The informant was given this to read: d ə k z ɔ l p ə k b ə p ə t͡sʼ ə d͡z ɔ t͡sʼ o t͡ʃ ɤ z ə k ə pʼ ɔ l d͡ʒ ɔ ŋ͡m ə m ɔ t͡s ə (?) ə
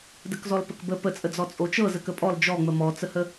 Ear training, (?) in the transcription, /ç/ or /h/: h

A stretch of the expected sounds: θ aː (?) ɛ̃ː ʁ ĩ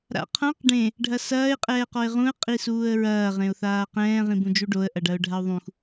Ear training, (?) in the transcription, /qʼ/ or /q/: q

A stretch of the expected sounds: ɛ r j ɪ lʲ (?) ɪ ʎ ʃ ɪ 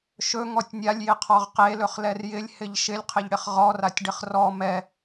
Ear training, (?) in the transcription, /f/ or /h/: h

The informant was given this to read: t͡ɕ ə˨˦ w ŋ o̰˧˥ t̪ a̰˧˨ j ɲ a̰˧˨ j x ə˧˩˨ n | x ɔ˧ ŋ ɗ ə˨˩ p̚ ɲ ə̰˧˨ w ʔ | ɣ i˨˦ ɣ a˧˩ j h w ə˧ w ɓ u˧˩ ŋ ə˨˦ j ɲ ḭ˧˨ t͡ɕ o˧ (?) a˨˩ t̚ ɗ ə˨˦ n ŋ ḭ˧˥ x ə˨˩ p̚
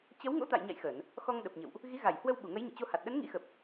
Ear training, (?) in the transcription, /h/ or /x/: h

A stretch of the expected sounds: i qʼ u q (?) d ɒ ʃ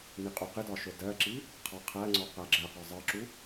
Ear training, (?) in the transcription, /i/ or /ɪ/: ɪ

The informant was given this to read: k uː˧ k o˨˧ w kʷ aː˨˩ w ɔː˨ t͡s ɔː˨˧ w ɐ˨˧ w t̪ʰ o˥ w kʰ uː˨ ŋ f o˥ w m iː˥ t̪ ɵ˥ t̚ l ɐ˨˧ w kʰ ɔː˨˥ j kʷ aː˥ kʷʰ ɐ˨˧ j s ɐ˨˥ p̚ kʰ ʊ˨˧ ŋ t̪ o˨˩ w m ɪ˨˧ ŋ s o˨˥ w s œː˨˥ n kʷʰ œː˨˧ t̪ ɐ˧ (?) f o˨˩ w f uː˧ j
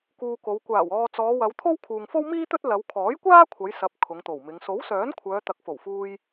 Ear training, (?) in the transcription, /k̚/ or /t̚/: k̚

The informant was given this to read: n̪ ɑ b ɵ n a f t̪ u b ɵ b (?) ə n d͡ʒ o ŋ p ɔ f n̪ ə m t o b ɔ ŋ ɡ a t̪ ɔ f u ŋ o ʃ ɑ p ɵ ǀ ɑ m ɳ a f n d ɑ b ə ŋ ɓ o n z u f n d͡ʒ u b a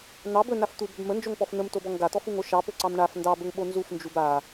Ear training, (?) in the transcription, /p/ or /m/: m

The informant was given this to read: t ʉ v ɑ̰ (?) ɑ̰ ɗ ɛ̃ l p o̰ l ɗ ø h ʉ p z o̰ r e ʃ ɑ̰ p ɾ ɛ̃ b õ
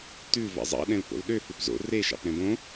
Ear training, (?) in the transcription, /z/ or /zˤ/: zˤ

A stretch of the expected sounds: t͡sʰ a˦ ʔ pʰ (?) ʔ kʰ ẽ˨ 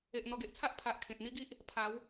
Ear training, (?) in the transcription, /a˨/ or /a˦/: a˨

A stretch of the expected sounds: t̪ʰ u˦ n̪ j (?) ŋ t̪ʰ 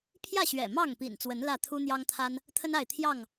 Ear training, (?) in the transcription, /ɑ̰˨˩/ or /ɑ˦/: ɑ˦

